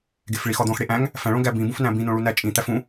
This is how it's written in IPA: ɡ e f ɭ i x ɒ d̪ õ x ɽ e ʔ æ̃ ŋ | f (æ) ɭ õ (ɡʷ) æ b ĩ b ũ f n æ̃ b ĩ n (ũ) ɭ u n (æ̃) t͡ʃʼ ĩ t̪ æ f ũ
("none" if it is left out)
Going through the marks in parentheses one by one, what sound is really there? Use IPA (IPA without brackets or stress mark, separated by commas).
æ̃, ɡ, õ, æ